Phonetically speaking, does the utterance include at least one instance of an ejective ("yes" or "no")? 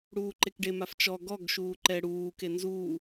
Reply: no